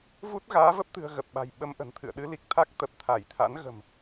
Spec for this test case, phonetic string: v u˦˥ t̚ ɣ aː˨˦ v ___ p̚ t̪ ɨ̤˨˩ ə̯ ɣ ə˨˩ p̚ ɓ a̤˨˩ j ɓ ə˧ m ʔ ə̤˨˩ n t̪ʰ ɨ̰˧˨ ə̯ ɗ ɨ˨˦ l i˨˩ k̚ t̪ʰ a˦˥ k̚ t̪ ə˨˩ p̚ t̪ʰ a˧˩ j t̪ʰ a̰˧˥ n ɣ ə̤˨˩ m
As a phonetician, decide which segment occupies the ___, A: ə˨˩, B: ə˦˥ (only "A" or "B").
B